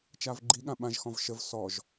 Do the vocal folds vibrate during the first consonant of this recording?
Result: no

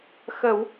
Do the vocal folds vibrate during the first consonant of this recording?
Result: no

